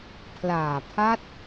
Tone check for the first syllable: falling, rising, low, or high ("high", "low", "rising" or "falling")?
low